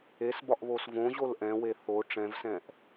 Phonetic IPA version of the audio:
esbɒʔβos võʑol ʔɛ̃we θo ʈ͡ʂɛ̃vsɛ̃ʔ

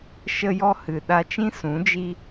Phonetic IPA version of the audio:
ʃə˧jɔ˧hɨ˨ ɗa˧t͡ʃĩ˦ sũ˨˦d͡ʒi˦

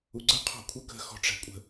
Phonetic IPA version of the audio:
uɡ͡ǀə qʰɔ̤kʷʰə kə̤ xɔ̤ʈ͡ʂæ̤kʷʼə̤

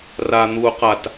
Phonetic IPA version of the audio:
ran̪uː qat

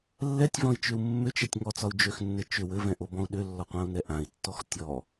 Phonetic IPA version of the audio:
lːɛtʲvɔ̃i̯t͡ʃʏu̯ mːʏt͡ʃɛtʲ ŋɔt͡sɒu̯ d͡ʒøxnːɘ t͡ʃʏ wɘvɛ̃ʔobɔ̃u̯ ɗʏlːɔqʷãu̯nɛ ʔãi̯tːɔx tʲɔ

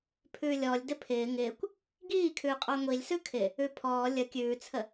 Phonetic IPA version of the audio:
pʰʉːlʲɔlʲ dɪpʰɪː ŋɪːkʷ | ɡiːkʰʉːqʼɑ ŋʷilʲsʉ kʰɪ | ʉpʰɔː lʲə kʲʉːt͡sʰə

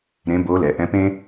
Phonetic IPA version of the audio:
ɾẽ˧˥bo˧˥ lɛ˩˧ʔɛ̃˧˥pẽ˥

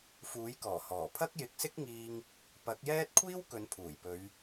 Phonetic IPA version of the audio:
fuː˨˥jkɔː˨˩hɔː˨˩ pʰɐ˥k̚jɪ˨˥k̚sɪ˥k̚ŋiː˧ŋ | pɐ˨˥k̚jɛː˥t̚ kʷʰiː˥w kɵ˨˧npʰuː˨˩jpɵ˨˧ɥ

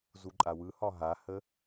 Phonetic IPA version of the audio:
zuǃʼawɯhɒ ɦahə

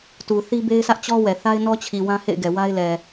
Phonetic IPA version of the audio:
tu˨ θi˦be˦ɪ̯sä˦ʔ t͡ɕɔ˦ wɛ˨θa˦ɪ̯ nɔ˦t͡ɕʰi˨ wã˦hḛ˦˨ɪ̯ɡɛ˨ wa˦ɪ̯lɛ˨

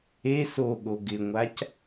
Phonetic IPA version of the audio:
e soɠo ɡɪŋʷac

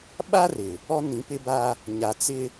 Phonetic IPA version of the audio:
ɓa˦rɪ˨ | ɔ˦nĩ˨˦pɪ˦ba˦ | ɲa˨t͡sɪ˦

